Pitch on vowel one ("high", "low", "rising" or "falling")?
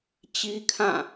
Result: high